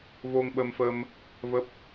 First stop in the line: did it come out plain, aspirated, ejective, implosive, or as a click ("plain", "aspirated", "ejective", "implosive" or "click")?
implosive